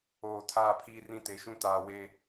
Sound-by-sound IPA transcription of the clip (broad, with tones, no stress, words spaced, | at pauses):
oː˨tʰaː˦˨pʰiː˦ rĩ˦te˨˦ʃũ˦taː˨ weː˨